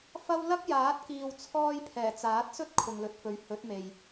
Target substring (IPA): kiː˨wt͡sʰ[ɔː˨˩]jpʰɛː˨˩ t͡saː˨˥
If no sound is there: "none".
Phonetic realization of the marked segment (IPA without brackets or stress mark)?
ɔː˧